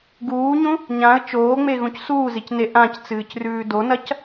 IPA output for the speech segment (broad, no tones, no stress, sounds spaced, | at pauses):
ɡ uː ɲ ũ | ɲ ã ə̯ t͡ʃ oː ŋ͡m e ɣ ũ c s uː z i c n e ʔ ã c t͡s ɨː c r ʉː d o n ɐ c